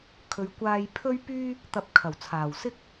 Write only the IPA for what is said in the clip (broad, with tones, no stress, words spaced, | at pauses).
kʰɵ˨ɥkʷaː˧j pʰɵ˥ɥpyː˥ | t̪ɐ˧p̚ kʰɐ˨˩wt͡sʰaː˨˩wsɪ˥k̚